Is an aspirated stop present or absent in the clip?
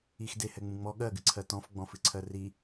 present